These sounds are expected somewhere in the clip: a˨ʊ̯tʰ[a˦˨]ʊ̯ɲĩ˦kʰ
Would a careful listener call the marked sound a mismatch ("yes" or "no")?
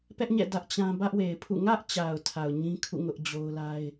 yes